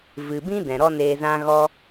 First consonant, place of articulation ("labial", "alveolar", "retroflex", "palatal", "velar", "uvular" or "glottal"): labial